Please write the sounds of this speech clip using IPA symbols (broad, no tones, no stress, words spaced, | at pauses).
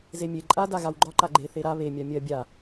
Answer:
zemʲe ǃʼa daɣawɡ͡ǃɒ ǃaɡ͡ǃe θeɾa βe mʲamʲɜ bʲa